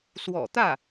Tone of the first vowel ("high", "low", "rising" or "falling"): low